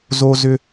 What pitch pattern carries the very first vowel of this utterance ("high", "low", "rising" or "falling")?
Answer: high